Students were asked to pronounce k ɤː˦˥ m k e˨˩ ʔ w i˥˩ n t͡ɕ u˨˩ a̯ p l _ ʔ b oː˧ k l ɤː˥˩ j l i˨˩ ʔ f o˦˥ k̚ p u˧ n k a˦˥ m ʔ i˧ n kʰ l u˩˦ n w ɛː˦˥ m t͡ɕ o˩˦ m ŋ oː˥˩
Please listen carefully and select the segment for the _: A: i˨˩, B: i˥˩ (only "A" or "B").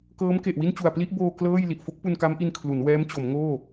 B